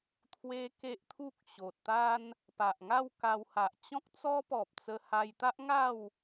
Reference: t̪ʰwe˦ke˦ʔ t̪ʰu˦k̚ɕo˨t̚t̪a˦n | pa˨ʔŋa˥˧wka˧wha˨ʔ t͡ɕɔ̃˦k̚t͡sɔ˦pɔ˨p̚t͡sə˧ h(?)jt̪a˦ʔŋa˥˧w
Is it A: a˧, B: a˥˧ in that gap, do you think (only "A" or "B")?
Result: A